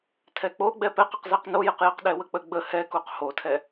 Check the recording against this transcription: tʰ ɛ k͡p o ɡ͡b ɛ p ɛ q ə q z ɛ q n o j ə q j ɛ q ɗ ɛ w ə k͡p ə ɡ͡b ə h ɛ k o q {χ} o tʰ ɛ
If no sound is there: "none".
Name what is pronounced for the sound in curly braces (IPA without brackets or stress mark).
h